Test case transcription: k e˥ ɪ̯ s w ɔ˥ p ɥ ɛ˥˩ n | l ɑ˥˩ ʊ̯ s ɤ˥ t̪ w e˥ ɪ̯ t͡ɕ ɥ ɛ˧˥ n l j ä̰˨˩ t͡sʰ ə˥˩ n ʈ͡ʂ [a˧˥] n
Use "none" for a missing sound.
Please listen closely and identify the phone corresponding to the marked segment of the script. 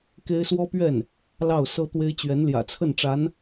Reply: a˧˥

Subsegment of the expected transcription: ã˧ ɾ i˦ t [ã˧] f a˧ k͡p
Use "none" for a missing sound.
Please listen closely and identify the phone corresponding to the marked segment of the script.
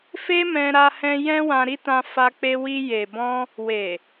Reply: ã˧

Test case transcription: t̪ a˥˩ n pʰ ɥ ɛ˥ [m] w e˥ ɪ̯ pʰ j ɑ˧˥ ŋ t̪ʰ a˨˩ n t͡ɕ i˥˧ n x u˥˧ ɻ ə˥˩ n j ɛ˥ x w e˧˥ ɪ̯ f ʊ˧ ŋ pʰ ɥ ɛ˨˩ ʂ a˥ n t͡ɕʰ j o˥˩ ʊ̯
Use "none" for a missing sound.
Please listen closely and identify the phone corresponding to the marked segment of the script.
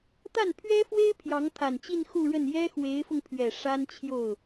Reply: f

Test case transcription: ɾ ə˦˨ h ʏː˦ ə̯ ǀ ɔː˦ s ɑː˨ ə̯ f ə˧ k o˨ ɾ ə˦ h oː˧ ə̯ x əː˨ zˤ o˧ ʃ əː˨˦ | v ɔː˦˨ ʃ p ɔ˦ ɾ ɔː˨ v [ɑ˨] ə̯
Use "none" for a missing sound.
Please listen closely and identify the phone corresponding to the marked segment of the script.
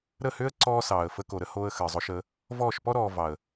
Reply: ɑ˨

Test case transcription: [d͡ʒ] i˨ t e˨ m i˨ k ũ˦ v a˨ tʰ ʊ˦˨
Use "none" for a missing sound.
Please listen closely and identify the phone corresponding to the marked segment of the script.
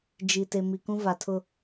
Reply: d͡ʒ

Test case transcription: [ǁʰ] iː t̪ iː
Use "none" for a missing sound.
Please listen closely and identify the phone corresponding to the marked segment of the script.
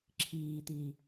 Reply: ǁʰ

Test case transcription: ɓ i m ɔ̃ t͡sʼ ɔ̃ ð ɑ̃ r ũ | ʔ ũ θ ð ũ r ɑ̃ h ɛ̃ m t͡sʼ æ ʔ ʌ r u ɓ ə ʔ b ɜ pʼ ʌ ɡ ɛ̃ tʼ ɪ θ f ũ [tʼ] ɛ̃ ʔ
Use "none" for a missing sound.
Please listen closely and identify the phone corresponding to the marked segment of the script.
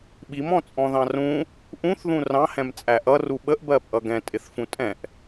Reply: tʼ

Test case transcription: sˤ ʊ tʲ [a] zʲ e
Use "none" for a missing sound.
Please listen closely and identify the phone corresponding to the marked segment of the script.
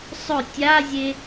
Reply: a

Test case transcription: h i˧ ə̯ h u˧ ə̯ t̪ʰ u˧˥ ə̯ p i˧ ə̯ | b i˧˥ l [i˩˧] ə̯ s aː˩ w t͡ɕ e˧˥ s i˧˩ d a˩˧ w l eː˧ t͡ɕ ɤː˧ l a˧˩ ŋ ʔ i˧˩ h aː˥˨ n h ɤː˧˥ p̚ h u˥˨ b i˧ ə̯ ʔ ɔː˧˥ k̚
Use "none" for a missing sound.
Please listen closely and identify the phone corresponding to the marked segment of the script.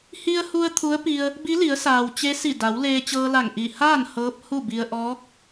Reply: i˩˧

